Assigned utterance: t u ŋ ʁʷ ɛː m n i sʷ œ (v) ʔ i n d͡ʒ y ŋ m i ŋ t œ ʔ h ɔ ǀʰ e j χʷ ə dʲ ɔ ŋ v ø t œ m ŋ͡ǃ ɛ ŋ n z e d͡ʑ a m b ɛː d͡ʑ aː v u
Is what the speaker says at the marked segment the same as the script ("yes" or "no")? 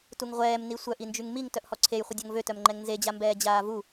no